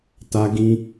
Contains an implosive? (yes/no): no